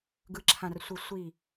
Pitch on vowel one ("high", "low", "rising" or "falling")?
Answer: low